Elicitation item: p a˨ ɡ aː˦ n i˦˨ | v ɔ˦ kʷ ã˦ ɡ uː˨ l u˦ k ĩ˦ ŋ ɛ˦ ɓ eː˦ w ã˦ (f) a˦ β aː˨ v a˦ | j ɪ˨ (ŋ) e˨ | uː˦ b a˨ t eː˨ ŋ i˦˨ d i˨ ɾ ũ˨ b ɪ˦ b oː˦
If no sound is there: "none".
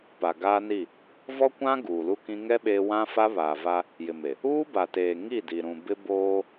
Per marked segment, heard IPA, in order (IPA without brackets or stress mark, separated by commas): f, m